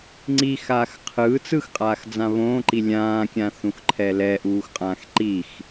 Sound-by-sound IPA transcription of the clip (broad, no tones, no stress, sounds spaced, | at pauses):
ŋ͡ǀ i x aː x qʰ ɯː t͡s ɯ x qʼ aː x d͡z ã β õː ǃ i lʲ ãː kʲ ã θ ũ x ǃʰ ɛ l ɛ ʔ uː x qʼ ãː x ǃ i x